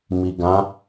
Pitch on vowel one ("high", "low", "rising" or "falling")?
low